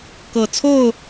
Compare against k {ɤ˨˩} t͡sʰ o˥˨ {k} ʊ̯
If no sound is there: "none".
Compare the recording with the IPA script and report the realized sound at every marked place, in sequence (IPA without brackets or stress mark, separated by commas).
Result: ɤ˨˩, none